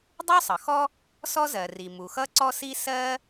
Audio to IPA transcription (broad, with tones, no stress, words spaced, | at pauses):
dˤu˥sˤʌ˩xɔ˥ | sɔ˥zɜ˩ri˩ mu˩xʌ˥ǀɔ˥si˥ sɜ˥